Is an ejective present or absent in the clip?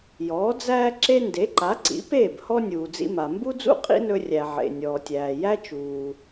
present